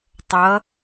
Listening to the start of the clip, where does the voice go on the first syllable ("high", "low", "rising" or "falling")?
rising